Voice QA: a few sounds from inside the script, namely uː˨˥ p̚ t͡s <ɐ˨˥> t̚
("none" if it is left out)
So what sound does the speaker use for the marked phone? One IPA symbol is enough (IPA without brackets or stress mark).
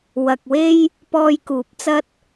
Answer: ɐ˥